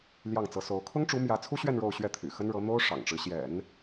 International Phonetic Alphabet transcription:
l j ɑ˥˩ ŋ t͡s ɤ˧˥ s o˧˥ ʊ̯ kʰ ʊ˥ ŋ ʈ͡ʂ u˧˥ m j ä˧˥ t͡sʰ u˥ ɕ ɥ ɛ˥˧ n ɻ o˥˧ ʊ̯ ɕ ɥ ɛ˥˩ t̪ʰ y̰˨˩ x ə˥ n ɻ ɤ˧˥ n̪ o˥ ʊ̯ ʂ ɑ̰˨˩ ŋ ʈ͡ʂ ɻ̩˦ ɕ j ɛ̰˨˩˦ n

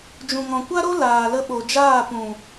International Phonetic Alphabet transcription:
d͡ʒ ũ˨ ŋ ɔ̃˨ kʷ a˦ ɾ o˦ l aː˨ l ə˧ ɓ o˨ d͡ʒ aː˦˨ p ũ˨

